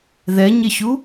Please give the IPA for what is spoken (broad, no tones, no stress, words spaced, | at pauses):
ðɛɲɪɕu